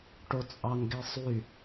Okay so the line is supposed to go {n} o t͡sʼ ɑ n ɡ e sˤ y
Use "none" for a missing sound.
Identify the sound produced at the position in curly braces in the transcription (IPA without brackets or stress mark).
ʈ